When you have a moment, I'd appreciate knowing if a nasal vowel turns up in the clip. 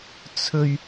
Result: no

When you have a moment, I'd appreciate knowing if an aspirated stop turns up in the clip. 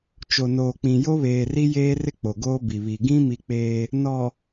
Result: no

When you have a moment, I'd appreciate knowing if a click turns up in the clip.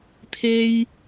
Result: no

